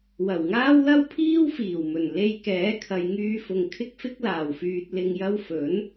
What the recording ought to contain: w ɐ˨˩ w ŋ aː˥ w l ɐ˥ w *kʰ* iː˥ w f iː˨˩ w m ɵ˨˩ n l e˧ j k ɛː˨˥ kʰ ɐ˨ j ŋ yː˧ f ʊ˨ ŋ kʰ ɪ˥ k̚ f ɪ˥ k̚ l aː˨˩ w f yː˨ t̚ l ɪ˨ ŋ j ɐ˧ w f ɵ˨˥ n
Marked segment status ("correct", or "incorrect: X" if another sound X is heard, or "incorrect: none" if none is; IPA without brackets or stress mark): incorrect: pʰ